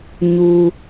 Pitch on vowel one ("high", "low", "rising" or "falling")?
low